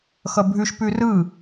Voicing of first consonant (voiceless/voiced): voiceless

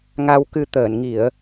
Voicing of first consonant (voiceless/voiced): voiced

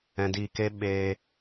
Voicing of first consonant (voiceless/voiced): voiced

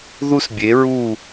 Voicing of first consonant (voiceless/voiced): voiced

